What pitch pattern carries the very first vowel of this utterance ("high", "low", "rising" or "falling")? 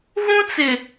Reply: high